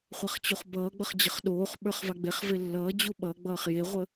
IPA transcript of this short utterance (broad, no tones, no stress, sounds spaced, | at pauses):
χʷ a χ t͡ɕ u χ b ʌː ɡ͡b ʌ χ d͡ʑ ə χ ɗ oː χ ɓ ə˞ χ v a ɡ͡b e χ v e lː ʌː d͡ʑ u ɓ ʌ ɡ͡b ʌː χ j e ʁʷ ə